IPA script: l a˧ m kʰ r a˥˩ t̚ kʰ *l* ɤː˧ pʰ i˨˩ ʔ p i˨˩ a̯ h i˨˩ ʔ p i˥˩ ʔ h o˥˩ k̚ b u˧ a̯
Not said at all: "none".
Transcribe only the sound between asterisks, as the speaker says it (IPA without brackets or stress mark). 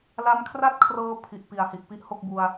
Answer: r